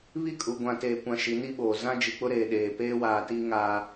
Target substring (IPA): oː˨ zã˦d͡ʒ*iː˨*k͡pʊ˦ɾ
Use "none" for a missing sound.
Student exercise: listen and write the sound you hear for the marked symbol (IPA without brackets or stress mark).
i˨